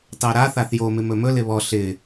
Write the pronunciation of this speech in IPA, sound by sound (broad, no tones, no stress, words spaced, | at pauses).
tɑɾa θaθjo mɪmɵmɵ lɪβɔ ɬɪ